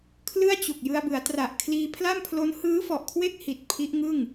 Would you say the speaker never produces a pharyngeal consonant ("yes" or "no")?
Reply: yes